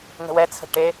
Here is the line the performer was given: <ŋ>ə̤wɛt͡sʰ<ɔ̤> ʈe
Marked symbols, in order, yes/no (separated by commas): yes, no